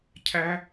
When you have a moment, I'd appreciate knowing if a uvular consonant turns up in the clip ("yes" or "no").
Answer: no